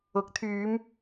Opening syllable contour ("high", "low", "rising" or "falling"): rising